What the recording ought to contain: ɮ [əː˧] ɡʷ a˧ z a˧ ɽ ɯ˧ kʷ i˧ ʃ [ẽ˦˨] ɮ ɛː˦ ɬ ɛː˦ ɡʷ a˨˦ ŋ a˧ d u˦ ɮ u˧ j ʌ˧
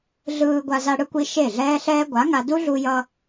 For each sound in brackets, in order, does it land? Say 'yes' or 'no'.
no, no

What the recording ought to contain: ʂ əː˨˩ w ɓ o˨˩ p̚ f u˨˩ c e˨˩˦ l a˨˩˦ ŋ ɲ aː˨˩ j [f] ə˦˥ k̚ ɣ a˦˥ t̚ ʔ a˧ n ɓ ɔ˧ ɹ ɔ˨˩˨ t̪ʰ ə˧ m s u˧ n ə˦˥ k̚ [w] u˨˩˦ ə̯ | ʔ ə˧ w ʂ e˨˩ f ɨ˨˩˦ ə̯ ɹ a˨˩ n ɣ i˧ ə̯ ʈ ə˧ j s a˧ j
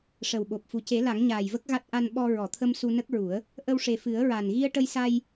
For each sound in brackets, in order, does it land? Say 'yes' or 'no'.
no, no

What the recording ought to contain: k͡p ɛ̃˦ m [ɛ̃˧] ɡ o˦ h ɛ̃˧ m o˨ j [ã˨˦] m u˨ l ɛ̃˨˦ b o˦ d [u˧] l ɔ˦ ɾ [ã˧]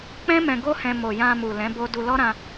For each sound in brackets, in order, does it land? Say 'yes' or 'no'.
yes, no, yes, yes

